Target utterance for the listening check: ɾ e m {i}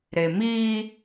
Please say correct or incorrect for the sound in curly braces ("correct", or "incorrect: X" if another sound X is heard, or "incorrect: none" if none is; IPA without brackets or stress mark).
correct